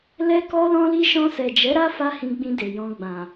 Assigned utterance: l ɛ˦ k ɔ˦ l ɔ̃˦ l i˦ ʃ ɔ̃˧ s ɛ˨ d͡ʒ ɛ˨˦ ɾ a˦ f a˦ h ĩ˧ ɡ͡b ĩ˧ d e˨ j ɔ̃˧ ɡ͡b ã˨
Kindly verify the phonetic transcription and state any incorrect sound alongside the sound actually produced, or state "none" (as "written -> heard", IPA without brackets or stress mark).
none